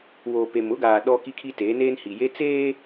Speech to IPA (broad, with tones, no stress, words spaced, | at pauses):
woː˨ pe˨mʊ˦ɡaː˨ ɗɔ˦ ki˦kʰi˦teː˨˦ neː˦nhi˨je˦ t͡seː˦